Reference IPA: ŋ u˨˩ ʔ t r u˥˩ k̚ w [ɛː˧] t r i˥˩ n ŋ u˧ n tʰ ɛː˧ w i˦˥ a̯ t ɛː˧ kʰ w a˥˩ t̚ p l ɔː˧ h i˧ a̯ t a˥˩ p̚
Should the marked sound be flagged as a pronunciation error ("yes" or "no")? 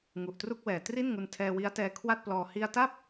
yes